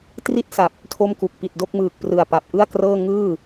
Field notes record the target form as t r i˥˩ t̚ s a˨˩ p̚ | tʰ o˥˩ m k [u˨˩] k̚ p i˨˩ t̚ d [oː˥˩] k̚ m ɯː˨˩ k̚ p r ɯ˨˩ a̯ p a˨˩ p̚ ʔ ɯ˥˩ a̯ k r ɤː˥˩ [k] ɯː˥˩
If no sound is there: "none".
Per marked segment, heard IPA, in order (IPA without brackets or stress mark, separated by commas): u˨˩, o˥˩, ŋ